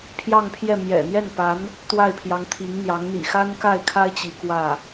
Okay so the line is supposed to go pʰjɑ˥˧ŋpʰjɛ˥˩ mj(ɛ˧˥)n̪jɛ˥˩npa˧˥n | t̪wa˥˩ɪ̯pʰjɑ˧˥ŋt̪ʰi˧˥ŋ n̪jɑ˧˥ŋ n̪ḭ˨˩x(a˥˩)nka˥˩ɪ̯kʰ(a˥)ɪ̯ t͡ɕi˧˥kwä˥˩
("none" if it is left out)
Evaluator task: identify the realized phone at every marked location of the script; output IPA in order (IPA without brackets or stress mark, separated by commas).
ɛ̰˨˩, a˥, a˥